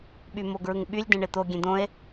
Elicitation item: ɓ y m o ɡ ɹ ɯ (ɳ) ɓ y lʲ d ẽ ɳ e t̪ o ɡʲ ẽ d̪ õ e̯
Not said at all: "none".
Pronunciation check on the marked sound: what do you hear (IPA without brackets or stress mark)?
ŋ